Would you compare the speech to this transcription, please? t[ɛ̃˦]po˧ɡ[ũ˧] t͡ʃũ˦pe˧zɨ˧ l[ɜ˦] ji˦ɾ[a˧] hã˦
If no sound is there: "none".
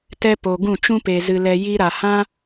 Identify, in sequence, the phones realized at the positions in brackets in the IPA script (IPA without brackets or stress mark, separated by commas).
ɛ˦, ũ˦˨, ɛ˦, a˧